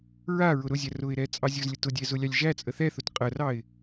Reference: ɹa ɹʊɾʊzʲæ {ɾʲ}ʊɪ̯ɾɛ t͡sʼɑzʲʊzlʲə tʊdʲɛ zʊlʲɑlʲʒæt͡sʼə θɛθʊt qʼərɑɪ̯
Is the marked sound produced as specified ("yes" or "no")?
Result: no